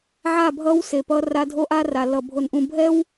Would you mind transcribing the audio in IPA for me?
ʕa˦˨bʱʌ˦w se˨pʌ˦ra˦ dʱo˦ʔa˦ ra˨lʌ˨ bʱo˨nʔũ˨bʱɛ˦w

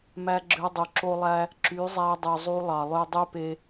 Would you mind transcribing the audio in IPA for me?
mæ˧ɡ͡ǁø˧dˤu˨ ǁo˧lˠæ˧ | ǁy˨˦zˤæ˧dˤy˨ zˤu˧lˠɑ˨lˠø˧ dˤy˦pe˧

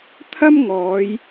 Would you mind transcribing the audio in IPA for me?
t̪ʰɐ˥m ŋɔː˨˧j

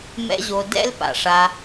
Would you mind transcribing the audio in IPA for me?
mɛ̰˦ʑo˧ dɛ̰˦lpa̰˨ʂa˧

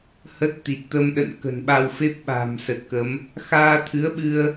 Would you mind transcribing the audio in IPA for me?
hə˦˥t̚ t̪i˨˩t̚t̪ə˧mɗə̰˧˨n kə̤˨˩nɓa˧wfe˦˥p̚ɓa̤˨˩m sə˨˩t̚kə˨˦m | xaː˧t̪ʰɨ˨˦ə̯ɓɨ˧ə̯

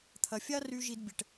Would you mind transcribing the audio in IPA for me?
t̪ʰɐ˨ fʲa˦ry˧ ʒi˧d bʲɛ˨ʈ

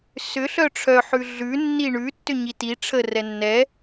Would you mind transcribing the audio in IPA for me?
sʏ ɬœʈ͡ʂʰœ ħʉɮʉ nːiɳʉ tːʏɲiti ʈ͡ʂʰə rɛnːɛ

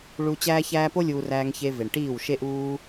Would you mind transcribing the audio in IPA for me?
ɭu˧ t͡ɕæː˦çæː˦ po˦lʲuː˧ ræː˧ŋçe˧ ve˨ɳʈiː˦˨wʃe˦ʔuː˦

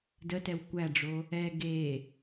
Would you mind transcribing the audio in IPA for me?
dətɛw kʷæɖ͡ʐo | ɛ ɡe

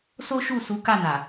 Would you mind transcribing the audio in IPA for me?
so˦ʃu˦˨su˨˦ ka˦˨na˨

